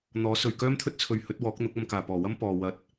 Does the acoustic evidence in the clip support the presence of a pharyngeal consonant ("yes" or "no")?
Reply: no